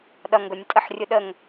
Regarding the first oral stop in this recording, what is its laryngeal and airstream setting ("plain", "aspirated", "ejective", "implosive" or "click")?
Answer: implosive